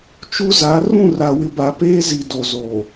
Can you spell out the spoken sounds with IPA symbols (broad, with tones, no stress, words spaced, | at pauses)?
t͡ʃu˦za˨˦ rũ˦˨ra˨wɪ˨ba˨ peː˦zi˨ do˨zoː˨